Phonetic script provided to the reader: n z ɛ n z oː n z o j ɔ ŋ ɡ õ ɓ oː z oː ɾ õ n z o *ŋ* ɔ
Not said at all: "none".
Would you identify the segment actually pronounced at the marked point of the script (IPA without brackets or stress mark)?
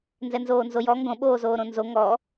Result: ŋ